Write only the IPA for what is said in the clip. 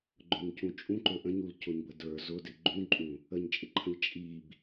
ɡ͡ǃ ʊ ɲ c ũ t͡ʃʼ ũ ǃ ɵ ʔ ə̃ ɲ u l c ʊ ɲ b ə d ə˞ z ʊ d ɪ ɡ͡ǃ ũ ǃʼ ũ | ə ɲ t͡ʃʼ ɪ ǃʰ ə̃ ʎ t͡ʃʼ i b

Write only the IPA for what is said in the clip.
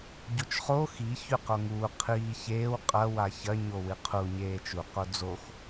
ɟ o t͡ʃ χ o x i ç ʉ q o ŋ uː qʰ iː ç eː w qʼ ɐ w a ç ɐ ɲ o w ɨ qʰ u ɲ eː t͡ʃ u q o d͡z o x

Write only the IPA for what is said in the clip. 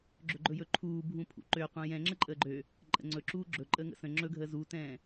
ɡ͡ǁ ɵ ɡ͡ǃ ɵ j ɵ ǃʰ uː bʱ ũ pʰ ṵ ǃ ø qʷ ɛ̃ j ɛ̃ ŋ͡ǁ ə ǃʼ əː ɡ͡ǃ ø | ǃʼ ə̰ ŋ͡ǀ ɵ ǁ uː ɡ͡ǁ ɵ ǃʼ əː ŋ ə̰ s ə̃ ŋ͡ǁ ɵ ɡʱ əː z u t ɛ̃ː

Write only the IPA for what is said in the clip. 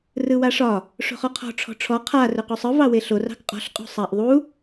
r ɯ w a ʂ ɒ | ʂ o̤ χ ɔ qʰ ɔ̤ ʈ͡ʂʰ ɔ̤ ʈ͡ʂʰ ɔ qʰ a r ɵ q u sˤ ɯ v ɑ w e ɬ o r ɑ̤ k qʼ ɔ̤ ɬ qʼ o̤ sˤ a ʔ ðˤ u

